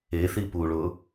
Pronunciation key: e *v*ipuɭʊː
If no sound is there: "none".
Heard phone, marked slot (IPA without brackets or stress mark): θ